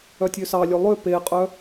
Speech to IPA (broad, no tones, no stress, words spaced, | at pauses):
œtʲøsɑlʲø lˠø peqʼœ